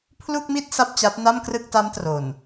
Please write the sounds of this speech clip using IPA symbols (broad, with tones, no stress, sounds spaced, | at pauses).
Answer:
pʰ l u˥˩ k̚ m i˥˩ t̚ s a˥˩ p̚ t͡ɕ a˦˥ p̚ n a˥˩ m k r ɯ˥˩ k̚ t a˦˥ m t r o˨˩ n